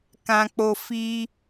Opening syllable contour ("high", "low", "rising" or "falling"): low